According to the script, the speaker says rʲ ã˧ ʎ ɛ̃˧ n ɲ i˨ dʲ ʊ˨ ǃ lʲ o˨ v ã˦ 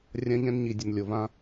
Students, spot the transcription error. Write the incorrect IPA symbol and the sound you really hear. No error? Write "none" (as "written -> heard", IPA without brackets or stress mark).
ǃ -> n